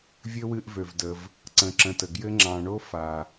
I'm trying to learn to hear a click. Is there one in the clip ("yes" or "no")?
yes